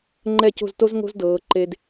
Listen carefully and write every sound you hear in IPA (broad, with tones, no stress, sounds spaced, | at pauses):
ŋ͡ǃ ɛ˧˩ c o̤˧˩ z t o˧ z ŋ o̤˥ z d ɤː˩˧ ǃ e˧ d